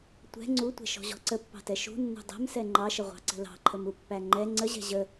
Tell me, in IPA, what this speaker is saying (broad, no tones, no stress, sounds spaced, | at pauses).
tʷ ɛ̤ ŋ͡ǀ u tʷ ɛ̤ ʃ ɔ̤ ʑ ɔ̤ ǀ ə pː ɑ̤ t ɛ ʃ ṳ nː ṳ dˤ ɛ̤ m s ɛ ŋ͡ǃ ɑ ʃ ə ʁʷ ɑ̤ ǀ ə̤ l ɑ̤ ǃʰ ə m u pː æ ŋ͡ǃ ɛ ŋ͡ǀ ə ʑ ɛ̤ ʑ ə